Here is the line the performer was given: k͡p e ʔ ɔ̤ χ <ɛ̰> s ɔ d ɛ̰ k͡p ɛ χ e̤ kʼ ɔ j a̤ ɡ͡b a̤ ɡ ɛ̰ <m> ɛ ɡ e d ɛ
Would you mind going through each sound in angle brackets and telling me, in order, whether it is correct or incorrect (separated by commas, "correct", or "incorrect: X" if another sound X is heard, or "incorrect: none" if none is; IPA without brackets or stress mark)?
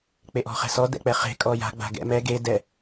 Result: incorrect: ɛ̤, correct